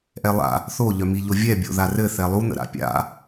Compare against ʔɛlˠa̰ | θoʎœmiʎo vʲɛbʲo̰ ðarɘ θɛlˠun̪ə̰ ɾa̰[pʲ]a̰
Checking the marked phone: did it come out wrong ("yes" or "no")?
no